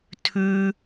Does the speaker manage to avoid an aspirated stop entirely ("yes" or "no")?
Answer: no